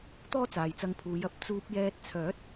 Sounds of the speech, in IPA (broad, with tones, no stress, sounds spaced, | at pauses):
t̪ ɔː˥ t͡s aː˨ j t͡s ɐ˧ ŋ pʰ uː˨˧ j ɐ˥ p̚ t͡s uː˧ p̚ j ɛː˧ t̚ t͡sʰ œː˨˥ t̚